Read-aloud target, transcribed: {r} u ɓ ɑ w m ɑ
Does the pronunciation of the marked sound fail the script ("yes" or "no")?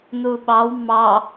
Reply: yes